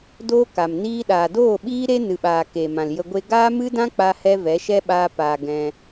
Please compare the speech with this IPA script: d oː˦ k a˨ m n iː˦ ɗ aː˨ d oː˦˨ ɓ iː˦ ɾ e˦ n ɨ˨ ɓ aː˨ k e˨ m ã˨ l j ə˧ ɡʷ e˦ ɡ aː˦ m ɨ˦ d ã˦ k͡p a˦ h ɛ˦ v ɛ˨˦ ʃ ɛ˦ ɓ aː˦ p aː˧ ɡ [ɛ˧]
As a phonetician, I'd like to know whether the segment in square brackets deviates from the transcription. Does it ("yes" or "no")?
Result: yes